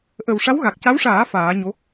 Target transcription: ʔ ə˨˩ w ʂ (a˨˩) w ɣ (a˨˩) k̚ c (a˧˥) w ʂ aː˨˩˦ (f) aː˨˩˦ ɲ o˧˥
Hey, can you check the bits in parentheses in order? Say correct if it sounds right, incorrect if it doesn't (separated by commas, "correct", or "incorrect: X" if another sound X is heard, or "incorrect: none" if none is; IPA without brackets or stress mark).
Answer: incorrect: a˧˥, correct, correct, correct